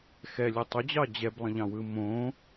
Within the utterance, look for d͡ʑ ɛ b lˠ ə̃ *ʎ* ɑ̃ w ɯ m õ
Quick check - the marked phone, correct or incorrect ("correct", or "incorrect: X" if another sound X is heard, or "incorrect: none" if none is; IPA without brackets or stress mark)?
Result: correct